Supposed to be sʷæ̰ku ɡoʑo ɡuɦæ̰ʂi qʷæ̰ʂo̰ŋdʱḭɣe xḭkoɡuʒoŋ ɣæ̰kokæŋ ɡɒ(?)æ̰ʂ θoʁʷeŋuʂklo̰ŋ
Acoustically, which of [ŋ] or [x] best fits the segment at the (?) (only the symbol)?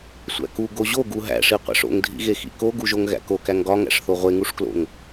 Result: ŋ